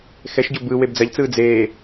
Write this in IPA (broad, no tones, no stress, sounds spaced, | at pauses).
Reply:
x ɛ ʃ ɟ o b ɯ w e b d͡z ɐ ʎ t͡s ɯː d͡z eː